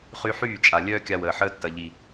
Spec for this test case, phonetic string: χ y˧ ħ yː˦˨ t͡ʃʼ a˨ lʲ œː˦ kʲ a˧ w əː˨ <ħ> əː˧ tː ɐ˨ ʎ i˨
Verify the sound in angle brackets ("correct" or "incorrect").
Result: correct